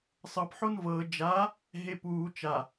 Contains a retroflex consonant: no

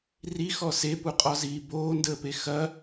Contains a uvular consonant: yes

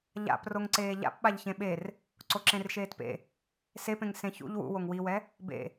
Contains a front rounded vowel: no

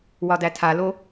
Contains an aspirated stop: yes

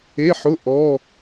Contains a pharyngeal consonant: yes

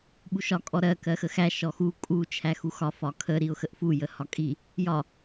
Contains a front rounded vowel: no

